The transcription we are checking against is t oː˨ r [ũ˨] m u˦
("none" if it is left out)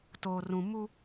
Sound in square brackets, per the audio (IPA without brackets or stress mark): ũ˨